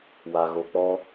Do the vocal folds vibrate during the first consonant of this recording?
yes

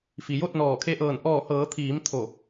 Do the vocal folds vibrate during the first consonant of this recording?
no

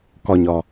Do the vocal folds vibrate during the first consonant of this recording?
no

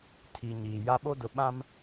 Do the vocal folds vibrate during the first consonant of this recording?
no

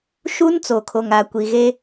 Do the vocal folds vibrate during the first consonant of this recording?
no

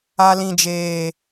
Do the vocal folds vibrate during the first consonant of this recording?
yes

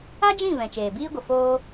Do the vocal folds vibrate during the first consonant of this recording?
yes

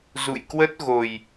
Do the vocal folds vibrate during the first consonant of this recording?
yes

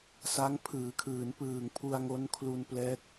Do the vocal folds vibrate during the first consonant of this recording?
no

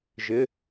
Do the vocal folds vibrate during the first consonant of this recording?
yes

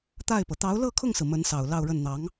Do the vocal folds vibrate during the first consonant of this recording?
no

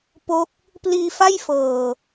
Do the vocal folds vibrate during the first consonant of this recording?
no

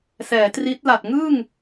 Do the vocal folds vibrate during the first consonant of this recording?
no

